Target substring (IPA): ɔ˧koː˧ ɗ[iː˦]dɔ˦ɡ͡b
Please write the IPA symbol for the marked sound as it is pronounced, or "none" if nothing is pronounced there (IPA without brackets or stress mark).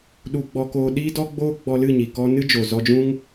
iː˦